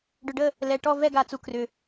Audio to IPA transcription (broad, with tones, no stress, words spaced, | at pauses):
ɖʏ˧ɖə˥˧ | lɛ˧ʈɔ˥˧ vɛ˥˧ɡa˧t͡su˧ krʏ˧